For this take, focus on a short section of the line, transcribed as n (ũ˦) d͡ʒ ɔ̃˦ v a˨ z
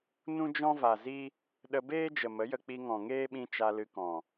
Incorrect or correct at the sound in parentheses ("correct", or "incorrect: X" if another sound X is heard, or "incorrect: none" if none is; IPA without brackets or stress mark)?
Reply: correct